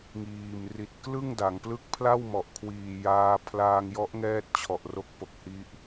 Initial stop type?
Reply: plain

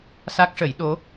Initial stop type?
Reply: plain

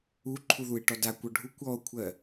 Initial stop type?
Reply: click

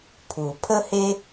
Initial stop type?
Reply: aspirated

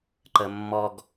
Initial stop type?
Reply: click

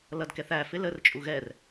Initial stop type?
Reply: plain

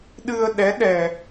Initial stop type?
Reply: implosive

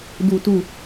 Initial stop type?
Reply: plain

